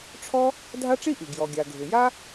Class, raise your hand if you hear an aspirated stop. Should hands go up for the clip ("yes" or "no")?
yes